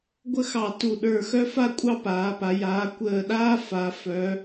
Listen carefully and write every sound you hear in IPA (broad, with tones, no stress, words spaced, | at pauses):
ɡʷə˥˧xɑ˧˩ tu˧˩ ɗə˞˧˩xœ˥fa˥ kʷʼɑ˥paː˩˧pa˩˧ jaː˩˧ kʷəː˧˩ɗaː˥ fa˩˧ fœ˩˧